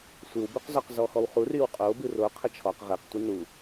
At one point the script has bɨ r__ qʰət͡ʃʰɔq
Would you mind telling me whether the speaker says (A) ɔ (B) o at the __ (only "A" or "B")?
B